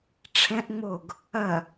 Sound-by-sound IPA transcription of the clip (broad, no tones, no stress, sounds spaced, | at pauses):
ʈ͡ʂʰ ɛ̃ ʔ ŋ͡m o ɡ | ɐ